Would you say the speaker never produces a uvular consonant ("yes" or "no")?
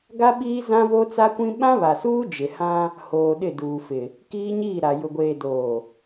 yes